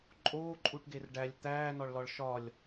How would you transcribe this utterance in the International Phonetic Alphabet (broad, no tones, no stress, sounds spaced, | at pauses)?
ǃʼ oː ǃʼ u ʈ ɡ e r ɖ æ lʲ t̪ æː n ɒ ɭ l ɒ ɭ ʃ ɒ lʲ